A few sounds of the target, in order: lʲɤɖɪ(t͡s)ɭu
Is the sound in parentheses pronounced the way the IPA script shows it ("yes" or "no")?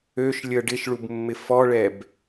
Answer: no